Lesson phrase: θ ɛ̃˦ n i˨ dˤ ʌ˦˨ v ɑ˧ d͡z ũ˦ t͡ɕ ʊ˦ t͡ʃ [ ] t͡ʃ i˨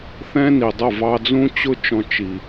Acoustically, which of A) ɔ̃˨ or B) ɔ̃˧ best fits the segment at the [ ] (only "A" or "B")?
B